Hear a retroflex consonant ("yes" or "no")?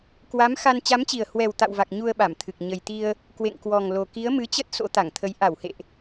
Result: no